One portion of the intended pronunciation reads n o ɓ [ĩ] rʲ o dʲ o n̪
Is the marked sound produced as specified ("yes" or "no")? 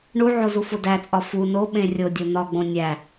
no